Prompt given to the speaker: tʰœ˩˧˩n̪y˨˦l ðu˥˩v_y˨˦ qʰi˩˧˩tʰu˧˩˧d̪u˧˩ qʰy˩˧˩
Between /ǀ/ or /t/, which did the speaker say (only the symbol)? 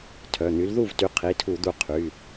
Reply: t